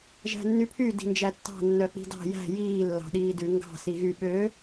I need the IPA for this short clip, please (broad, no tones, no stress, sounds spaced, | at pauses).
ʒ æ̤ nː y pʰ y d i̤ n d͡ʒ æ tː ɑ̤ nː œ k͡p i̤ d ɑ̤ j æ̤ j iː lː ɑ̤ ɗ iː d ʉ ŋ ɡ ɑ̤ s i ɣ y ɓ ø